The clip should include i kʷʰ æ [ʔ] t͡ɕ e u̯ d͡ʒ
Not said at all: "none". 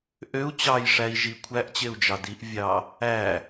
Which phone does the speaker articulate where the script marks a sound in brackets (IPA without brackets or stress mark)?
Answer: ʔ